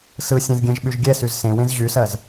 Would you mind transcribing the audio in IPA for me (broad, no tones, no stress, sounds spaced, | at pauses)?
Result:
s ɯ sʲ ẽ z ɡʲ ɛ̃ ʒ ɓ y ʒ ɡʲ ɛ s y z s ẽ w ẽ z ʑ y s ɜ z